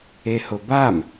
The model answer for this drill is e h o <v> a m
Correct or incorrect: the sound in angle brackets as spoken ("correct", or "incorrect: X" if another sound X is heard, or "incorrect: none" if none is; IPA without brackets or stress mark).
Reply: incorrect: b